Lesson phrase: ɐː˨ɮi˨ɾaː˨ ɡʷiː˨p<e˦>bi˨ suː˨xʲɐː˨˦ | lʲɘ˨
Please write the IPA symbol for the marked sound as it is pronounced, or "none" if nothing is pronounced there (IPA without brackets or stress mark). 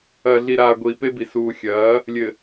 e˦